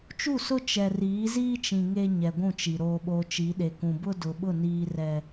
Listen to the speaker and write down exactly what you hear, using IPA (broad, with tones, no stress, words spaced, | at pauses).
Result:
t͡ʃu˦˨sʊ˦ t͡ʃɛ˨riː˨˦ziː˦t͡ʃĩ˨ ŋe˦ ɲɛ˨ɡʷũ˦˨t͡ʃi˨ ɾoː˨ɓoː˨ t͡ʃi˨˦ɗe˨kũ˨ bʊ˦dʊ˨ɓʊ˦˨ niː˦rɛ˦